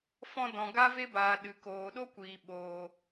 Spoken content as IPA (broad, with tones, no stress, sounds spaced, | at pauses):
f ɔ̃˧ d ɔ̃˨ ɡ a˦ v e˦ b aː˨ ɗ ɨ˨ k oː˨ ɗ o˦ kʷ iː˨ ɓ oː˨